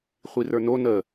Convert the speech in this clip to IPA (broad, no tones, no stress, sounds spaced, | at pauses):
χʷ i r ə˞ n o n ə